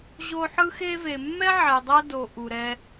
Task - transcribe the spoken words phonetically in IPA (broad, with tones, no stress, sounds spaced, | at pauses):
ʑ o˦ ħ ɯ˥ x e˦ v e˨ mː ɛ˥ ʕ ɛ˨ dˤ ɤ˦ d o˨ ʔ u˩ ɾ ɛ˨